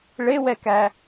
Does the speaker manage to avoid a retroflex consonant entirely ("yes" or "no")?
no